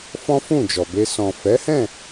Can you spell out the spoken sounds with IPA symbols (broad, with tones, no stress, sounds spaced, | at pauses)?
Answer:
f ɔ̃˦ f ũ˦˨ d͡ʒ ɔ˨ b e˧ s ɔ̃˨ f ɛ˨˦ h ɛ̃˦˨